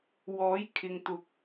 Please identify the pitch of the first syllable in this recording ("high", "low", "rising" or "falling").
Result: rising